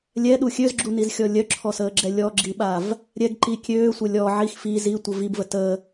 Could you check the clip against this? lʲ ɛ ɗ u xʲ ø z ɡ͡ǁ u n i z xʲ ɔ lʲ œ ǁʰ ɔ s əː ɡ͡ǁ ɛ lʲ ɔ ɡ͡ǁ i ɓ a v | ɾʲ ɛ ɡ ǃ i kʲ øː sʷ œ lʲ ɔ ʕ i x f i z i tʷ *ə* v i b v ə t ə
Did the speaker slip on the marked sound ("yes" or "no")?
no